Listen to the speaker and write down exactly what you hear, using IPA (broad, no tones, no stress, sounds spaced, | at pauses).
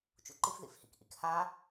t͡ʃ ṵ ǃ i f ð ḭ f h ḭ k ʔ ḭ k h a